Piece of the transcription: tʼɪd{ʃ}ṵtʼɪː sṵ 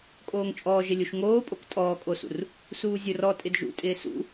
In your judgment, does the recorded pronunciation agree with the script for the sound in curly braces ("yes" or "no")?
no